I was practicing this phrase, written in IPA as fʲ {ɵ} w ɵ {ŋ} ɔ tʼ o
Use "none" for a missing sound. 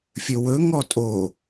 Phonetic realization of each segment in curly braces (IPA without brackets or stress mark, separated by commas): ɵ, ŋ